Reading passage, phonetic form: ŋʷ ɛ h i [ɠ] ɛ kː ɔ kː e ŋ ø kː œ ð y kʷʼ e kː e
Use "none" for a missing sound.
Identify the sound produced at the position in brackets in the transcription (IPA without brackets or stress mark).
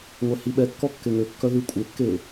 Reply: ɓ